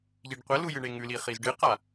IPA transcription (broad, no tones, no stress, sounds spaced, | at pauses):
ʎ i ɖ qʷ ɐ l u j ɨ ɳ e ŋ ʉ l i χ i z ɖ ɨ q a